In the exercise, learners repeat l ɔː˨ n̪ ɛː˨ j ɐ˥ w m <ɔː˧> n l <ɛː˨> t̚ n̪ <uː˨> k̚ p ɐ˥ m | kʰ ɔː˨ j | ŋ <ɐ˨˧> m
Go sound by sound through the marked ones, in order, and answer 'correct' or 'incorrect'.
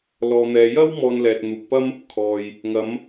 correct, correct, correct, correct

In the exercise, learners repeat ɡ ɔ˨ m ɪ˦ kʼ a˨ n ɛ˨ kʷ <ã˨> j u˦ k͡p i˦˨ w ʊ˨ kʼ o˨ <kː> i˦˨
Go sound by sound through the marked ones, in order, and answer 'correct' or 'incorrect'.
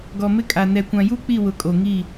correct, incorrect: ŋ

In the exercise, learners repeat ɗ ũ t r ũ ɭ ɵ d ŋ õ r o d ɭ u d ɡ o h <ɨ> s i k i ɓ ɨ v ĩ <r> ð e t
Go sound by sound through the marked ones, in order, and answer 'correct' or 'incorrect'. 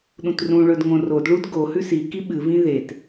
incorrect: ʉ, incorrect: none

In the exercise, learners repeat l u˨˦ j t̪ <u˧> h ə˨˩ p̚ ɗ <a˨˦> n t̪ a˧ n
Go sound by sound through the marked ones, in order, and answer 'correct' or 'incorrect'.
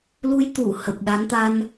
incorrect: u˧˩, correct

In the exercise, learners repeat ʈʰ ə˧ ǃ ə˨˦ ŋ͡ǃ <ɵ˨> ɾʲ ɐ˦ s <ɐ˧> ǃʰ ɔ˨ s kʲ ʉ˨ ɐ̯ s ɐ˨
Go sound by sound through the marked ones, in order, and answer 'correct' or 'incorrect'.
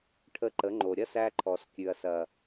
incorrect: o˨, incorrect: æ˧

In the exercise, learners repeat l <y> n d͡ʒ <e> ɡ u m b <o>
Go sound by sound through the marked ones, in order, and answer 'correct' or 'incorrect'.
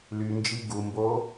correct, incorrect: i, correct

